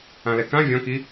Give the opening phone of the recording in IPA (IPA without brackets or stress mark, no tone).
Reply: ã